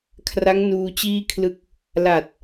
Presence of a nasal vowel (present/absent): absent